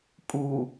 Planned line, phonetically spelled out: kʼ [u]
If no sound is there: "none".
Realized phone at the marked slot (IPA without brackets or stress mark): u